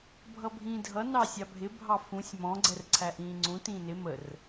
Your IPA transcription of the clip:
bʱ ʌ bʱ ĩː dʱ ʌ n ɑ sʲ ɑ bʱ ɪ bʱ ɑ f ũ sʲ m ɔ̃ ɡ͡ǀ ɛ r ǀʰ æ ʔ ĩː ŋ͡ǀ ũ t ĩː n ɪ m ə r

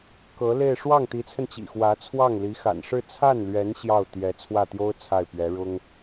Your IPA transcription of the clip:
k ɤ˧˥ l e˥˧ ɪ̯ ʂ w ɑ˥˩ ŋ t̪ i˧˥ t͡sʰ ə˧ n t͡ɕ ḭ˨˩ x w ä˧˥ t͡sʰ w ɑ˥˩ ŋ l i˧˥ x a̰˨˩ n ʂ ɻ̩˥˧ t͡sʰ a˥˩ n l ɥ ɛ˧˥ n ɕ j ɑ˥˩ ʊ̯ t̪ j ɛ˧˥ t͡sʰ w ä˥˩ t̪ j o˥ ʊ̯ t͡sʰ a˥˩ ɪ̯ p ɥ ɛ˧˥ ɻ ʊ˥ ŋ

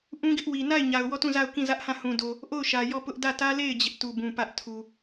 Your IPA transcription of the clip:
ʔ ũ˦ ɡ ɪ˦ ʔ w i˨ n a˦˨ ɪ̯ ɲ a˨ ʊ̯ w ɔ˦˨ t ũ˦˨ z a˦˨ ʊ̯ k ĩ˦˨ z ä˦ ʔ h ã˦˨ h ũ˨ d o˨ | ʔ o˦˨ ʊ̯ ʃ ä˨ j ɔ˦˨ p ʊ˦ ʔ d ä˦˨ t ä˦ l e˦˨ ɪ̯ d͡ʑ ɪ˦ ʔ t u˨ b ũ˨ p ä˦ ʔ tʰ u˨

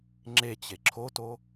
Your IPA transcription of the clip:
ŋ͡ǁ e t͡ɕ e ǁʰ o t o

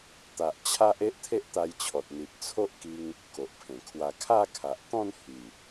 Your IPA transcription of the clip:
t̪ a˨ ʔ t͡ɕʰ a˦ ʔ e˦ ʔ t̪ʰ e˦ ʔ t̪ a˧ j t͡ɕʰ ɔ˨ t̚ n̪ i˨ p̚ t͡sʰ o˦ ʔ k i˧ ŋ | k o˨ ʔ pʰ ẽ˨˩ kʰ w a˧ kʰ a˥˧ kʰ a˨ ʔ t̪ ɔ̃˥˧ n h i˨˩

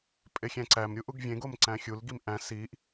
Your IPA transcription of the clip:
pʼ e xʲ æ̃ ǀ æ m ɾʲ u ʔ u ɡ vʲ ẽ ɡ o m ǀ æ̃ xʲ u l ɡ i m ʔ æ̃ s i ʔ

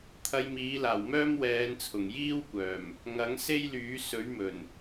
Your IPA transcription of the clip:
t̪ʰ ɐ˧ j m iː˨˥ l aː˨˩ w m œː˥ m w ɛː˨˧ n t͡sʰ ʊ˨˩ ŋ j iː˥ w kʷ œː˨˩ m | ŋ ɐ˨˥ ŋ s e˥ j l yː˨˥ s ɵ˨˥ ɥ m ɵ˨˩ n

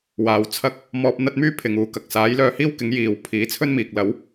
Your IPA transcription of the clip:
w aː˨˧ w t͡sʰ ɐ˥ k̚ | m ɔː˧ p̚ n̪ ɐ˥ t̚ m yː˥ pʰ ɪ˨ ŋ uː˨ k ɐ˨ k̚ s aː˨˥ j l œː˧ h iː˥ w k ɪ˨˥ ŋ j iː˨˧ w pʰ iː˨˥ t͡sʰ ɵ˥ n m iː˨ k̚ l ɐ˨˥ w

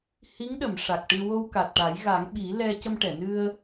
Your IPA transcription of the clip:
h i˧˥ ŋ ɗ ə˨˩˨ m ʂ a˨˩ k̚ ʈ ɨ˧ w o˧ w k a˨˩ t̚ ʈ a˨˩˦ j ɣ a˨˩˦ ŋ ɓ i˨˩˦ l ɛ˧ c ə˧ m ʈ ɛ˨˩˨ n ɨ˧ ə̯

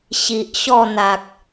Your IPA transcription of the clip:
ɕ i˨ ʔ ɕ ɔ˥˧ n̪ a˨ k̚

